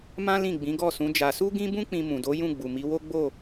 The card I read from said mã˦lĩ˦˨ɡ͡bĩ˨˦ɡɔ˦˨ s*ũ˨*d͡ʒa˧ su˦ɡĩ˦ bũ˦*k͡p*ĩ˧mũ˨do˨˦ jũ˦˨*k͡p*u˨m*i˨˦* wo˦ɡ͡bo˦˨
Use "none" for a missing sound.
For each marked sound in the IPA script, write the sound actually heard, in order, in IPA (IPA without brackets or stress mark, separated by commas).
ũ˨˦, k͡p, ɡ͡b, i˨˦